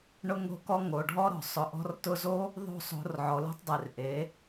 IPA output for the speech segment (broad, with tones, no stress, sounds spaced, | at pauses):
ɳ ʊ˧ ŋ o̤˧ k ɔ˧ ŋ o˨ ɖʱ ɔ˦ ɾ ɔ̤˨ sˤ ʊ˨ ʔ ɔ̤˧ r t ʊ˧ z o˦ | ðˤ o̤˦˨ sˤ o̤˨˦ r ʕ ɔ˨ l o̤˦ tˤ dˤ e˨ r ʔ e˨˦